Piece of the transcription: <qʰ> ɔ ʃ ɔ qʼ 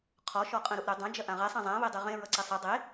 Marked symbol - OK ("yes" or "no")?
yes